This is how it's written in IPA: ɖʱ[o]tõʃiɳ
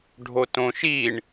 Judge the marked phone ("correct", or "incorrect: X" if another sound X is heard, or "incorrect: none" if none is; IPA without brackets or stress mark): correct